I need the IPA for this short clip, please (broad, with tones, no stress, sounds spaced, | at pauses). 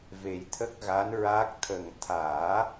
v e˨˩ j t̪ʰ ə˦˥ k̚ ɣ a˧˥ n ɹ a˦˥ k̚ t̪ʰ ə˨˩ ŋ t̪ʰ aː˨˩˦